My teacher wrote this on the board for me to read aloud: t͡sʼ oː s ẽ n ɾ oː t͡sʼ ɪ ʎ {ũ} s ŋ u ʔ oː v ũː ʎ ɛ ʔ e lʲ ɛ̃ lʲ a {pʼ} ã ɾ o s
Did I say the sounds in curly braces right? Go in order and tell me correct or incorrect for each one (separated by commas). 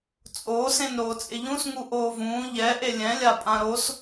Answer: correct, correct